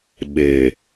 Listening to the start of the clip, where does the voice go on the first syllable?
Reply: low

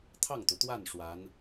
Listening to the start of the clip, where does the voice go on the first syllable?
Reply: falling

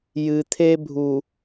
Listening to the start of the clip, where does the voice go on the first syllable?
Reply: low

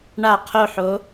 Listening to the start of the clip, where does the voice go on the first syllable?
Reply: falling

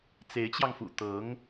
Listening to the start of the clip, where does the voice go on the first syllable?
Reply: rising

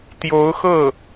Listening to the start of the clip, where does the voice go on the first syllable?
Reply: rising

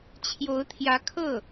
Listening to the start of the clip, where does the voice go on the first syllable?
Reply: rising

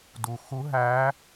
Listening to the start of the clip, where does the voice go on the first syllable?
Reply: low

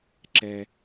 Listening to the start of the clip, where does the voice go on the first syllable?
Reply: high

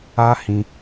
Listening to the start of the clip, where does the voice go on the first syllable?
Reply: high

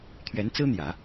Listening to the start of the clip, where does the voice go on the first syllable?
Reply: rising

